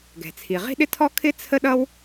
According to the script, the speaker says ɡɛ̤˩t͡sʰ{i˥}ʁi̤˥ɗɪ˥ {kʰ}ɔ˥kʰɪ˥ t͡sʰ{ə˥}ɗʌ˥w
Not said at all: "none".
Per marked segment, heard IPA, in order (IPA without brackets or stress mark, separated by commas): i˩, tʰ, ə˥